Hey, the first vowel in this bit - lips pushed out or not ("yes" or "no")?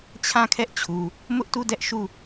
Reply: no